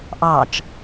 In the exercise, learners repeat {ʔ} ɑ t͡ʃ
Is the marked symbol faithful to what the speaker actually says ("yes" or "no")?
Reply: yes